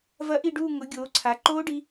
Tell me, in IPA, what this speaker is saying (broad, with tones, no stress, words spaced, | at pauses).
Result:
vɐ˦˥ʔi˥˧ɖuː˥˧ ŋʊ˨˦ ɡʲoː˨˦ǀʰa˨˦ ǃoː˦˥ɖi˨˦